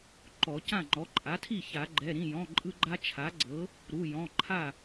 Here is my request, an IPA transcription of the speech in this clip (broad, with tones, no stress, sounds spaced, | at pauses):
ǃ ɔ˨˩˦ c ã˥˩ ŋ͡ǃ ɔ˩˥ ǃʼ a˩˥ tʰ i˥˩ ç a˨˩˦ ɡ͡ǃ ɛ˩˧˩ ɾ ĩ˩˧˩ j ɔ̃˩˧˩ ǃʼ ɯ˦ ɡ͡ǃ a˦ t͡ʃʰ a˩˥ ɡ͡ǀ ɤ˩˥ | ɾ u˩˧˩ j ɔ̃˩˧˩ ǃʰ a˥˩